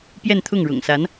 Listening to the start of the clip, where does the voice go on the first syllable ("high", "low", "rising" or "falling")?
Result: falling